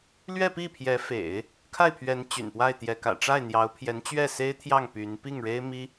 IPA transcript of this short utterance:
l ɥ ɛ˥˧ p i˥˩ pʰ j ɛ˧˥ f ḛ˨˩˦ ɪ̯ | kʰ a˥˩ ɪ̯ pʰ ɥ ɛ˧˥ n t͡ɕ y̰˨˩ n p w a˥˩ ɪ̯ t̪ j ɛ˧˥ k ä̰˨˩ ʈ͡ʂ a˥˩ ɪ̯ n̪ j ɑ˧˥ ʊ̯ pʰ j ɛ˧˥ n t͡ɕ ɥ ɛ˥˩ s e˥ ɪ̯ t̪ʰ j ɑ˥˩ ŋ p y˧˥ n p i˥˩ ŋ ɻ e˥ ɪ̯ m i˥

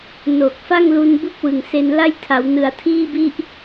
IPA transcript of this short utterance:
n o˨˩ k̚ f a˥˩ ŋ l u˧ n b u˦˥ k̚ w ɯ˨˩ ŋ s e˧ n l a˥˩ j tʰ a˩˦ w n ɯ˩˦ a̯ tʰ iː˥˩ b i˥˩ ʔ

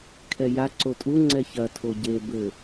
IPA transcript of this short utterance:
kʰ ɛ j a ǀ o tʼ u ŋ͡ǀ ɛ ç ɐ tʰ o ɟ e b ɘ

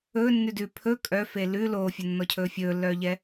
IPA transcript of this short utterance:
ɵː nː ʉ d ʉ pʰ ɵ kʼ œ f e l ʉ l oː fʲ ɵ nː ɔ cʰ ɵː fʲ ɵː lː œː ʎ ɛ

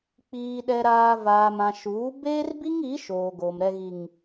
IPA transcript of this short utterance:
k͡p iː˨ ɗ ɛ˨ ɾ aː˨ v aː˨ m ã˨ ʃ uː˨˦ b eː˦ r b i˦ ŋ i˨˦ ʃ oː˨ ɡ o˨ m ɾ ɛ˨ ɣ i˨ ŋ

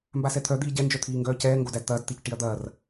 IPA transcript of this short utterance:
m b a s ɛ t̪ʰ œ d̪ iː ɟ ɛ n d͡ʒ œ t̪ʰ iː ŋ ɡ œː c ɛː ŋ ɡ o d æ d t̪ ɐː d t̪ i c ʈ i ɐ̯ d̪ ɐː r

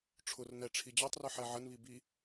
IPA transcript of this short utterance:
ʈ͡ʂʰ ʊ r n ɛ ʈ͡ʂʰ i d͡ʑ ɑ tˤ r ʊ ħ ɛ ʕ ə n β i b i

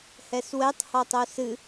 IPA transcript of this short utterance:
h ɛ s w ɛ tˤ h ɔ tˤ o s ɨ

